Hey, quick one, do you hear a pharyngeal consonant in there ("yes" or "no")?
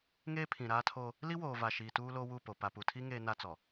no